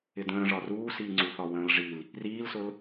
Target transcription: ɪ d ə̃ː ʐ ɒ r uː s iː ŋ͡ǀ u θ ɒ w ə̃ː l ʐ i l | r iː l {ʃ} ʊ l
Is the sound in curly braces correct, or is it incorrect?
incorrect